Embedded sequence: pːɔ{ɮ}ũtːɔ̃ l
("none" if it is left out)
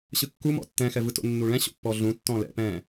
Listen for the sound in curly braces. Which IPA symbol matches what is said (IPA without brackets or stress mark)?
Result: ɮ